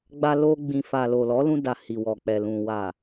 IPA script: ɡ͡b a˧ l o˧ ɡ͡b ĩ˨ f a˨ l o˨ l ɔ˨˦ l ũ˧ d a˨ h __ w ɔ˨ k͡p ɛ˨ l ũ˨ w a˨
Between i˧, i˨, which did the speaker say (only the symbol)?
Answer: i˨